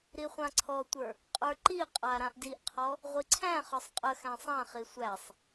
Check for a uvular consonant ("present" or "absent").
present